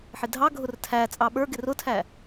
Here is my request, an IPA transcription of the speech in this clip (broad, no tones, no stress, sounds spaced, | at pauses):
ħ ɪ dʱ ɑ ɡʱ ʊ r tʰ æ t͡sʼ ɑ ɓ ə˞ ɡ ɪ r ʊ tʰ æ